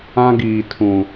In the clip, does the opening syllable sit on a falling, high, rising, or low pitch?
high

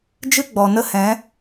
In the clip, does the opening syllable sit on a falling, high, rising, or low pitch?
high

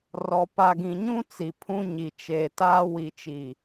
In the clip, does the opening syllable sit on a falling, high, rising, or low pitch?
low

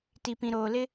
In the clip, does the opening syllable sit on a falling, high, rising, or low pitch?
low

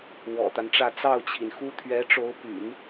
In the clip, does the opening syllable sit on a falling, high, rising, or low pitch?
low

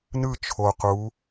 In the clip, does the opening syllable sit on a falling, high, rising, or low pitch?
falling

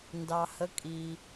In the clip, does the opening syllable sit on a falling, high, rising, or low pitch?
low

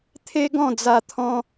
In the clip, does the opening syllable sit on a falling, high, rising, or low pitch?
high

